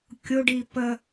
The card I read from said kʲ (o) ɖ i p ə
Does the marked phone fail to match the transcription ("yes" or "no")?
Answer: no